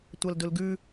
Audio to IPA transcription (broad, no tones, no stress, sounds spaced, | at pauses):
tʷ a l d ɵ l ɡ ʉ